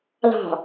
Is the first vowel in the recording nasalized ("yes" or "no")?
no